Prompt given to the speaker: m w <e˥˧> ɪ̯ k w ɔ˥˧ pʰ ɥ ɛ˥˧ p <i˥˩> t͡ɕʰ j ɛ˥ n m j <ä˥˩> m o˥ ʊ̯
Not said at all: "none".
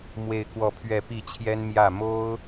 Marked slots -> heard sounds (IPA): e˥˧, i˥˩, ä˥˩

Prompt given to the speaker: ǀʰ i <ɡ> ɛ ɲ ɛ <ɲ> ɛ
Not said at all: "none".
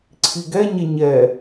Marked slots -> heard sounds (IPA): ɡ, ɲ

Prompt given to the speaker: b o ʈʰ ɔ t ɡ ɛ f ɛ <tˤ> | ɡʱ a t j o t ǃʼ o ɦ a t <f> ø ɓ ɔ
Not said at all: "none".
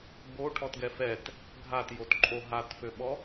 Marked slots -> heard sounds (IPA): t, f

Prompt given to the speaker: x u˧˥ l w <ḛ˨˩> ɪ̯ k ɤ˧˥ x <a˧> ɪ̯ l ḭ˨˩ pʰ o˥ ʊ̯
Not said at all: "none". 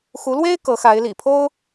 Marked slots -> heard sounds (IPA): e˥, a˧˥

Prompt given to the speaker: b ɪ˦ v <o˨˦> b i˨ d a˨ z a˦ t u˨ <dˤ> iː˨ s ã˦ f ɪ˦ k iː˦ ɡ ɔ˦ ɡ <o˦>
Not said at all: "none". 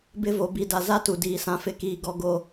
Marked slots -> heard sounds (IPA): o˨, d, o˦

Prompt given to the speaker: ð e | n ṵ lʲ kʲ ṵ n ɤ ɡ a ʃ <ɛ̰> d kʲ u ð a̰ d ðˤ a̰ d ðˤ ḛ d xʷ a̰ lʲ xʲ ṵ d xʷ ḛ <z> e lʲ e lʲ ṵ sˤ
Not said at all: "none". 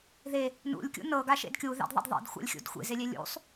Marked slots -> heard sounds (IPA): ḛ, z

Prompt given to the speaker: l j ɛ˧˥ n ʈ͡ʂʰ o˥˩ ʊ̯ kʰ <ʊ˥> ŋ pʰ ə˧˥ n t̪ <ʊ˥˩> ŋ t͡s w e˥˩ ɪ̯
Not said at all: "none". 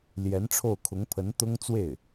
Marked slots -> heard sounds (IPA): ʊ˧˥, ʊ˥

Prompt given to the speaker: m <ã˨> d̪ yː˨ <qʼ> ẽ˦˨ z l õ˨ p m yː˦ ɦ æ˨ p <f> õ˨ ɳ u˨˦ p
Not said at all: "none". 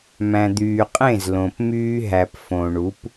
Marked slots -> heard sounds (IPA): æ̃˨, qʼ, f

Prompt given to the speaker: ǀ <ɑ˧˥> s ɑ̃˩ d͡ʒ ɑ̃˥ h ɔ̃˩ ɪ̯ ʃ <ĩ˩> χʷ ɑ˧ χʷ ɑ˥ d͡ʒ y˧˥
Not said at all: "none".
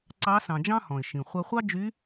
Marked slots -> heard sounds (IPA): ɑ˧˥, ĩ˩

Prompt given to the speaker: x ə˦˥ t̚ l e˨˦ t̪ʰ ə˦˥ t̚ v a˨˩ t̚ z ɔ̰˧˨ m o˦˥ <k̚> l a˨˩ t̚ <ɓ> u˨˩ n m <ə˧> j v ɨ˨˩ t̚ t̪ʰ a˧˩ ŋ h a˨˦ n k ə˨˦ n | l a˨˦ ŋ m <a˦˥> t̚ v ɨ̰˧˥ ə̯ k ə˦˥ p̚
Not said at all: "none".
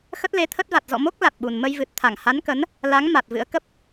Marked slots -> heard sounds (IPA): k̚, ɓ, ə˧, a˨˩

